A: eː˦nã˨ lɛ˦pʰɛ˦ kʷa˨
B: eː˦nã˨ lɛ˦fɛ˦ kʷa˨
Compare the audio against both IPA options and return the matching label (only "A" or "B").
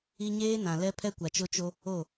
A